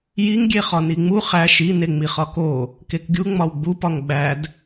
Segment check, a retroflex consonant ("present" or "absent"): absent